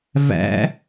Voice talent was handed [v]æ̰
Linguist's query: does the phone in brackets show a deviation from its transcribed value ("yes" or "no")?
no